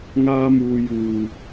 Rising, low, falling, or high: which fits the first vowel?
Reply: high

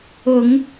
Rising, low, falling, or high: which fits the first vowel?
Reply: low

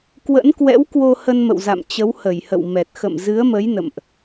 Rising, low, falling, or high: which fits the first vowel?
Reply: rising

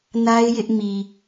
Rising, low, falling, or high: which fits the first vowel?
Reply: high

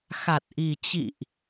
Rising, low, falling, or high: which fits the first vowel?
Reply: low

